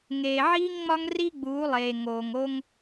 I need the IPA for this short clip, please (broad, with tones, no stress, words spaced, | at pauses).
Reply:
ŋeː˨ʕiː˦ŋŋ͡mɒ˦ŋ ri˦ɡ͡buː˨˦lˠeː˨ ŋoː˨ŋ o˦ŋ